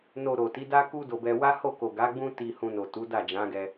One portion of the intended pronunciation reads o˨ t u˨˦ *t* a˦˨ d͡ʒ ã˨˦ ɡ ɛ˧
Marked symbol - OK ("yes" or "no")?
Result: no